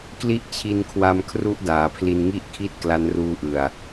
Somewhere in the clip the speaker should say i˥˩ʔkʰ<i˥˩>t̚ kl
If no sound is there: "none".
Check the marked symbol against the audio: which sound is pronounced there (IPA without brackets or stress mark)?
i˥˩